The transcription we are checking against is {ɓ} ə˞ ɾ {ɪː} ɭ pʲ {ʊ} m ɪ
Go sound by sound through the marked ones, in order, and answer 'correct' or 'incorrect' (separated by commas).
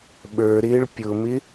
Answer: correct, correct, correct